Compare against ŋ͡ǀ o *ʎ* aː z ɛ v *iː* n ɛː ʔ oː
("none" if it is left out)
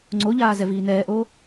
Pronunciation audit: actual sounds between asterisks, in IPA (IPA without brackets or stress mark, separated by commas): ʎ, iː